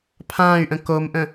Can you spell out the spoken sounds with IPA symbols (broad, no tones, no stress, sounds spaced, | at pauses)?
pʰ ãː y̯ ʔ ə̃ k o m ʔ ə̃